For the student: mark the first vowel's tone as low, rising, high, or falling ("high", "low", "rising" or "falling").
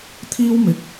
high